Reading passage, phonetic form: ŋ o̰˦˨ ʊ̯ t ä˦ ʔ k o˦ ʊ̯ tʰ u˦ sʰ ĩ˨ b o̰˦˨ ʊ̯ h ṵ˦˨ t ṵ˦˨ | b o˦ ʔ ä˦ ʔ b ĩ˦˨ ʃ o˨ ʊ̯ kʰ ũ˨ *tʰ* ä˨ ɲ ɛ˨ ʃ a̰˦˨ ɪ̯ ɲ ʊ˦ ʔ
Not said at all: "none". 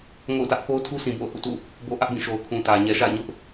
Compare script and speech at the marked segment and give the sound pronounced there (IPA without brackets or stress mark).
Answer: t